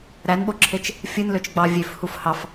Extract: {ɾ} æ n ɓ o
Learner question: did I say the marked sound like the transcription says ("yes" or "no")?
yes